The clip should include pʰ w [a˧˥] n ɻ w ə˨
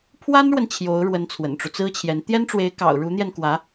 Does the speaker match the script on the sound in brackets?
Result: no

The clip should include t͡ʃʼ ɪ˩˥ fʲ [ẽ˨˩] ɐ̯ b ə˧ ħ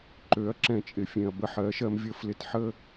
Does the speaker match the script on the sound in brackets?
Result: yes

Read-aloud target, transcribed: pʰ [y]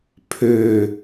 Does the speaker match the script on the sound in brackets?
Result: no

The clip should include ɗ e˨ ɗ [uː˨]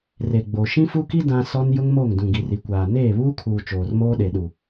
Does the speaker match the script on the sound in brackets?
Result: no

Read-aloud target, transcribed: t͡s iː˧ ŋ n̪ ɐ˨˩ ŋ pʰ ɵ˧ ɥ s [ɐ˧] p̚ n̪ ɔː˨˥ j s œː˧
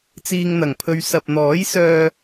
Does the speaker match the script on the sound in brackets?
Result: no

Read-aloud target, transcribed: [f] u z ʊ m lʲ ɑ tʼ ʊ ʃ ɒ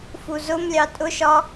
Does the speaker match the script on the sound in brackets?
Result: yes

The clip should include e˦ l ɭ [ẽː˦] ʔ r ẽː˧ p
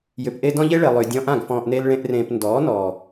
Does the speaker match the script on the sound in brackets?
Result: no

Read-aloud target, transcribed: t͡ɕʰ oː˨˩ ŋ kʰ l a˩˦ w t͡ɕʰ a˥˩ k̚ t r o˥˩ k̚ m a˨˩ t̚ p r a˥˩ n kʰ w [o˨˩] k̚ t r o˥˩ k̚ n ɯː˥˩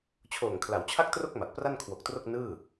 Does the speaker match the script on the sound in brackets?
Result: yes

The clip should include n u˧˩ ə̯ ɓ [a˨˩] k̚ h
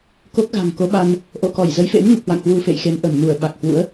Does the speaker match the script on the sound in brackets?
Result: yes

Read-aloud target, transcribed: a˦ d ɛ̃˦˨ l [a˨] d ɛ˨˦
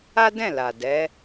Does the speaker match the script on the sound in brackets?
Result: yes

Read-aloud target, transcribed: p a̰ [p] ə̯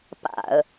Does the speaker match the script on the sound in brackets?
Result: no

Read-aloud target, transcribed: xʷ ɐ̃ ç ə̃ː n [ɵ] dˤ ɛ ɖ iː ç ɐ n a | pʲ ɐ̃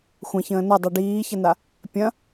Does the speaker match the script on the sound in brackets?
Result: no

